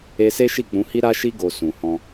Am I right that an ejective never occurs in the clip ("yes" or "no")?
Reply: yes